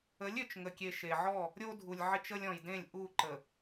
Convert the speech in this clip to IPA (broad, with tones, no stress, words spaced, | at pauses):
ə˨˦lʲø˨t͡ʃ ŋə˨kʲe˨ ʃe˨ʕɔ˦˨ | ɾʲo˦dʱu˨lʲ ʕɪ˦t͡ʃə˦lʲ ɔ̃˨jdẽ˦˨lʲ ʔu˦˨ ǃə˨